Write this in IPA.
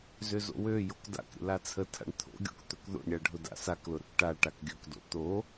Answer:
zøzo̰wøjok da̰kɾʲə̰ lat͡sʰətʰa̰ɳ t̪ʰo̰ɡʲo̰k t̪ɵkðo̰ɳɾʲa ɖʱʊda̰saklʊ ɾʊkʈaʈak ɡʲɵkdo̰ t̪o

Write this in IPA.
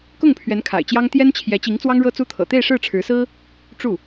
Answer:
kʊ˥˩ŋpʰɥɛ˧˥n kʰa̰˨˩ɪ̯t͡ɕjɑ˥ŋ t̪jɛ˥n t͡ɕʰjɛ˧˥t͡ɕi˧˥ŋ t͡swɑ˥ŋɻɤ˥t͡su˥t̪ʰɤ̰˨˩ t̪e˥˧ɪ̯ʂɻ̩˥˩ʈ͡ʂʰɻ̩˧˥sɹ̩˥ | ʈ͡ʂu˥˩

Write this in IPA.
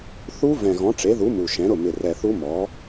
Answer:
θu˦˥ vɛ̃˨˩ɣɔ̃˩˥ʈ͡ʂe˩˥ðu˩˥ mu˨˩ʃɛ̃˩˥ɾʊ˥˩ mɪ˨˩rɛ˨˩θu˦˥ mɔ˩˥

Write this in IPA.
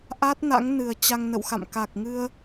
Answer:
ʔa˦˥t̚na̰˧˥ŋ nɨ˨˩ə̯t͡ɕa˧ŋ nə̰˧˨wxa̰˧˨m ka˨˩k̚ŋɨ˧ə̯

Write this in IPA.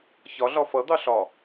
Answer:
çɒɮɒ fʌd̪ɑ ɬɒ

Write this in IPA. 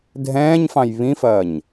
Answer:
dʱɛ̃ːɲfɑ̃j βĩfɐːɲ

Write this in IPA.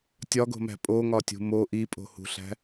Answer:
tʲɒɡo̤mæ̤ pʼoŋɒtʲṳ mo ʔipʼo̤hṳɬæ̤

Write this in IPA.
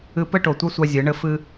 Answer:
ɨ˧pɘ˦ ʈo˨tʷa˦sʷa˧ zʲɨ˨˦ɳɘ˦fɨ˦

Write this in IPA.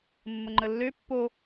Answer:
mːəŋ͡ǃəlːø pːo

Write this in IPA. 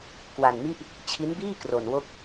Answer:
kwa˧nmi˥˩ʔ | t͡ɕʰi˦˥nbiː˥˩ kro˧nwo˥˩k̚

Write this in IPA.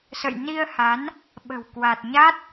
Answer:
sə̰˧˨j ni˧ə̯ha˨˦n | ɓə̤˨˩wkwa˨˩t̚ ɲa˦˥t̚

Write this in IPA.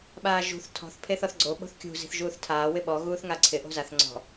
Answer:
ɓaːʒṳθ tʰɔ̤θ pʰeθɔθɡ͡ǀo ɓo̤θkʲṳ zi̤θʒuːθtʰaː wɪɓɔ ɣuːθŋaǀʰɪ ʔo̤zaθ ŋ͡ǀɔ̤

